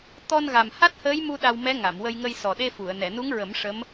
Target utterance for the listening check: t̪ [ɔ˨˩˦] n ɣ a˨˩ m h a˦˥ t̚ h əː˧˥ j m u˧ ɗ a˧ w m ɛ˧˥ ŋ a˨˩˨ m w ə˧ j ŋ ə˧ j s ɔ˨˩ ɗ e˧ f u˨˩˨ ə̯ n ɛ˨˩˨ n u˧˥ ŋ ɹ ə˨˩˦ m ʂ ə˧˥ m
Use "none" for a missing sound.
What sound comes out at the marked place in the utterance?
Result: ɔ˧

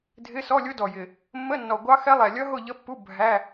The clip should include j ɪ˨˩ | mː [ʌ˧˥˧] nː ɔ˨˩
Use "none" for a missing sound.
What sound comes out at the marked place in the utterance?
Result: ə˧˥˧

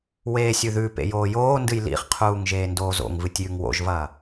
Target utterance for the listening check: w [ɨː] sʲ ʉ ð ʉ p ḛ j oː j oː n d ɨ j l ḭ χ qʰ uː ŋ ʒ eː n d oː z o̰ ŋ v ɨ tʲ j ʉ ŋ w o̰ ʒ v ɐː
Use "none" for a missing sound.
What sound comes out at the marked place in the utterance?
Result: eː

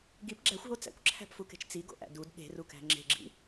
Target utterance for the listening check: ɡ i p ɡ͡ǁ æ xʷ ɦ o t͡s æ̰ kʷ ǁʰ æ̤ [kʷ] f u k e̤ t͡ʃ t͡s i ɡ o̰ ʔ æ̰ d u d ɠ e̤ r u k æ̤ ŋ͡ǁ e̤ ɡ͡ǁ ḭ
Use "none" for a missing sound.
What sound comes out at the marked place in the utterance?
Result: p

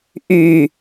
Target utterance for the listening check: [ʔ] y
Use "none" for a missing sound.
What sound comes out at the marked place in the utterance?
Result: ʔ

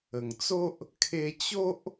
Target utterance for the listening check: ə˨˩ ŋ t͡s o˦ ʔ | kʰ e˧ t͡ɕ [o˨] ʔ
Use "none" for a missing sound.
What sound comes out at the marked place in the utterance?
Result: o˦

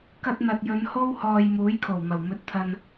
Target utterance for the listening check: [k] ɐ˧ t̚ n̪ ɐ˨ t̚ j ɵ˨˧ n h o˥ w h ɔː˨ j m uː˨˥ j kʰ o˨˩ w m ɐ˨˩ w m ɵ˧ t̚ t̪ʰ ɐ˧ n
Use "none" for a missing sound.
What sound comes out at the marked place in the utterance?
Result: k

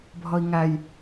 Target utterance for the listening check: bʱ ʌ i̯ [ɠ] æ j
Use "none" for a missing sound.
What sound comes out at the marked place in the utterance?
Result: ŋ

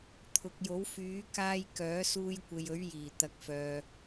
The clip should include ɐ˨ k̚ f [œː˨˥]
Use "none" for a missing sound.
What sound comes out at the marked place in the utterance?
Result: œː˨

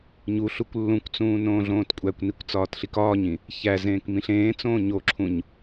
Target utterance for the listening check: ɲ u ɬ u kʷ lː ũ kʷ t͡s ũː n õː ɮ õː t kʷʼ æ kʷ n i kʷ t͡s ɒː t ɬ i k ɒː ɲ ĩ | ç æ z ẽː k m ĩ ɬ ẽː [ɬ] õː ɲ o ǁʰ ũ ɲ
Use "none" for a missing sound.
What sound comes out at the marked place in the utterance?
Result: t͡s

